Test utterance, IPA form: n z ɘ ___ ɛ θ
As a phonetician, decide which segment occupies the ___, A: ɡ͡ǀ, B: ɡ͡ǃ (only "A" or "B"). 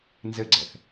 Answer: A